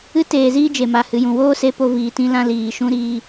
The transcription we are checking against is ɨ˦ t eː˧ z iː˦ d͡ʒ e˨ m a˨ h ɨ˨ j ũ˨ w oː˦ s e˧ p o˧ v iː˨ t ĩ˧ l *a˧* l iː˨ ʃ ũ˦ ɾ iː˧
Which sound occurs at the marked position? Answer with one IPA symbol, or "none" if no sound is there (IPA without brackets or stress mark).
ã˧